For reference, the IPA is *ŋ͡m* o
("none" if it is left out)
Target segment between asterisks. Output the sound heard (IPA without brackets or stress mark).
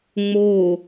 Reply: ŋ͡m